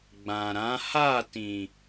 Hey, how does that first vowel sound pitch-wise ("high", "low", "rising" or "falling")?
low